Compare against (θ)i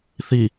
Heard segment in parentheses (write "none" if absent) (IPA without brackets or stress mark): θ